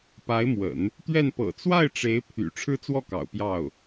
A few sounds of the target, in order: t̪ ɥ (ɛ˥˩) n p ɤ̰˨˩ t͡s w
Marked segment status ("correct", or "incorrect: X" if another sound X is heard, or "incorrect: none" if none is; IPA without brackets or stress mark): correct